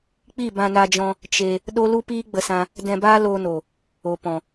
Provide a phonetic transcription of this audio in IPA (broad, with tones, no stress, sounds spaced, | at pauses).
k͡p i˦˨ b ã˧ n a˧ d͡ʒ ɔ̃˧ | t͡ʃ e˧ | ɗ o˦ l u˦ p iː˦ ɡ͡b ə˧ s ã˧ | d ɛ̃˧ b aː˦ l oː˧ n o˨ | o˨ p ɔ̃˨